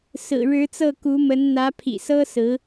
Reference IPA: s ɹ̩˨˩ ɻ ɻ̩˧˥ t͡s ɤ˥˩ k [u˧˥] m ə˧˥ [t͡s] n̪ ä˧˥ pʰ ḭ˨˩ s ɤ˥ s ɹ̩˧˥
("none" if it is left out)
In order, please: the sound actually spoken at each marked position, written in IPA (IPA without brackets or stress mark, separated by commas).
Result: u˧˥, n